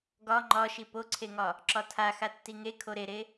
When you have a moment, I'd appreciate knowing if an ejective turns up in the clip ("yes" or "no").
no